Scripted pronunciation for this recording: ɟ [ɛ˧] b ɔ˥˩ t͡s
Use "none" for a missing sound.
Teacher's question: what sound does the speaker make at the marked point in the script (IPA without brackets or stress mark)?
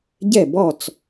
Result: ɛ˥˩